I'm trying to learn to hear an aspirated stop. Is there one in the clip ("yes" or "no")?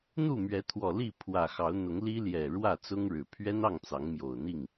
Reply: yes